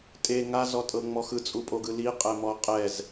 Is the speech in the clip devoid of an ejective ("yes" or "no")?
no